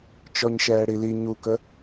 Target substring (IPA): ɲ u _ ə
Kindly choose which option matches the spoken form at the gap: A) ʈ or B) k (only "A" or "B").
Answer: B